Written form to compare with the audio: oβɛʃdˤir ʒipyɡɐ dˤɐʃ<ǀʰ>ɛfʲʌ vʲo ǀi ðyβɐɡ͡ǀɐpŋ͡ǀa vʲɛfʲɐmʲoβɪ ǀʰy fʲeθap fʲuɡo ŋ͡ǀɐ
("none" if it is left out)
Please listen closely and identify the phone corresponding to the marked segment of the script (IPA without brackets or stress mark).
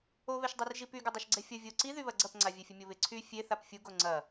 ɡ͡ǀ